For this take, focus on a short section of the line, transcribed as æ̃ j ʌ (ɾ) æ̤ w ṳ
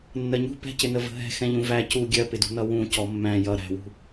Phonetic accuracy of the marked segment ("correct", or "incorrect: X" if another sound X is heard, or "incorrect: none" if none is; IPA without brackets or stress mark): correct